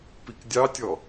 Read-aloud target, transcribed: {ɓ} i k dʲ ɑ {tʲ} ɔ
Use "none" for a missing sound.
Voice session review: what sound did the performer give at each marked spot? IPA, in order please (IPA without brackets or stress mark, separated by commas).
p, tʲ